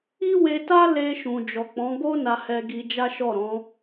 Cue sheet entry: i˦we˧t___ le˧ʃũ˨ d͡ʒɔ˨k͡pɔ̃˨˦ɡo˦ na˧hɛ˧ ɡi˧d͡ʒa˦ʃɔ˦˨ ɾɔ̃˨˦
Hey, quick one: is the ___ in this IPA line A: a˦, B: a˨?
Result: A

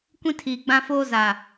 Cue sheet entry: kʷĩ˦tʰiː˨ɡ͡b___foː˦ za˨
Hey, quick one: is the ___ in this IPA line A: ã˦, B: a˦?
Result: A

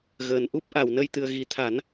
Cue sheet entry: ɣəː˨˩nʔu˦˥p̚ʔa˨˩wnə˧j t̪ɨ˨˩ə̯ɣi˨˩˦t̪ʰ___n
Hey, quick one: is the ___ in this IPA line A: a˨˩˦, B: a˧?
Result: A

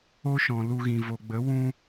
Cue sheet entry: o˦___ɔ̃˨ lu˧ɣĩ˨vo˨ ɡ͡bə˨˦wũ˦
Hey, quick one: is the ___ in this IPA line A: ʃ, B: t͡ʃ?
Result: A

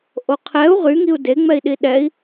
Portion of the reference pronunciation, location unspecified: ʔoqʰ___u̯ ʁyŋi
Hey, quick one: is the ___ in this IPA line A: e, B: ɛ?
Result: B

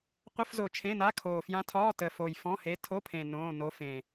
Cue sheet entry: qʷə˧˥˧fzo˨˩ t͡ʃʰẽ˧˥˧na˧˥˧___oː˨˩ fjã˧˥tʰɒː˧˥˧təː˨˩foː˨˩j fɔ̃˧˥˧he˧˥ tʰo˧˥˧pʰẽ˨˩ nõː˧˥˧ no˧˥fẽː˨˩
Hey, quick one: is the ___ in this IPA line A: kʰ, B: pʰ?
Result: A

